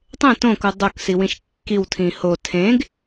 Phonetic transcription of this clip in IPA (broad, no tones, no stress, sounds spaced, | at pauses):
tˤ ẽ t õ k u dˤ o k s i w ĩ ʃ kː i w tʰ ĩ h o tʰ ẽ ɡ